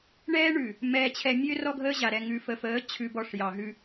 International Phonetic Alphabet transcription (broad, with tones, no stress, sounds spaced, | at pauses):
ɳ ɛː˦ ɳ ʉ˨ | m ɛː˨ t͡ɕʰ ɛ˨ mʲ ø˦ r ɔ˦ ɡʱ əː˦ ʑ a˨ ɾ ɛ˨ ŋ ʉ˨ f ə˨ f əː˨˦ t͡ɕʰ ʉ˨ b ɔ˨ ʂ j ɑ˨ ɦ ʉ˦